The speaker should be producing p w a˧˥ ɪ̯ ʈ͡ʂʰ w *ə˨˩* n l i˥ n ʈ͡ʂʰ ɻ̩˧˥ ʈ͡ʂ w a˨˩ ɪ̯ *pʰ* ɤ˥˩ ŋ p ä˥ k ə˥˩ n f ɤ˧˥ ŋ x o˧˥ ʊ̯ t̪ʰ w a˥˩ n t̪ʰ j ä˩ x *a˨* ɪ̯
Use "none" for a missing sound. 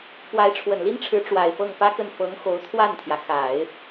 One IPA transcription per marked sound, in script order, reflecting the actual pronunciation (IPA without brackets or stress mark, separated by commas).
ə˨˩, f, a˨˩˦